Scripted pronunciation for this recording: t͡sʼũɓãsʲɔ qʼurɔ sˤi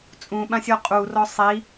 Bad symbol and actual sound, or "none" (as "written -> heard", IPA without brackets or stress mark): none